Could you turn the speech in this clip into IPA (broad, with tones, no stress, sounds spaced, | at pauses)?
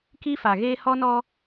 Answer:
k i˦ f a˨ ɣ eː˦ h ɔ˦ n ɔ˦